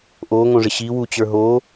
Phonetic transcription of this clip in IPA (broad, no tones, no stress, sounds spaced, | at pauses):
ʔ o ŋ õ ʐ ɪ ɕ i w u t͡ɕ ə˞ ɦ o